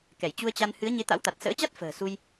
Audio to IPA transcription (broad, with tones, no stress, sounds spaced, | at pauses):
k ɛ˧˩ j t͡ɕ u˧ ə̯ t͡ɕ a˧ n h ɨ˨˦ ə̯ ɲ e˨˦ t̪ a̰˧˥ w t̪ a˨˩ t̚ s ə̰ː˧˥ t͡ɕ a˦˥ t̚ f ə̤ː˨˩ s u˧ j